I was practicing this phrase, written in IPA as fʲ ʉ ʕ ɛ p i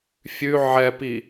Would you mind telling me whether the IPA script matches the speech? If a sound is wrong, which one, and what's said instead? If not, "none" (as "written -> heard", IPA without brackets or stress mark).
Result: none